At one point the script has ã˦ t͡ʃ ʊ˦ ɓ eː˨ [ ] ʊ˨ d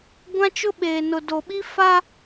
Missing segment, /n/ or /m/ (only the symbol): n